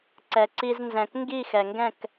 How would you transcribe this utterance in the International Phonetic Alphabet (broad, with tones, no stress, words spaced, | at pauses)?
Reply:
ǀɛ˩ǀi˧znzɛ̃˩k ŋɡi˥˩xɛ˩ŋɡɛ̃˥˩k